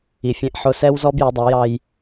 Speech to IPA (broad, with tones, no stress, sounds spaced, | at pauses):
i˨ fʲ ɛ̃˦ ʔ ħ ʊ˦ s ɛ˦ w z ɔ˦ b j ʊ˨˦ dˤ ʌ˨˦ j ɑ˦ j